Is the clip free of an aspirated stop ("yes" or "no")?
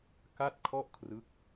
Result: no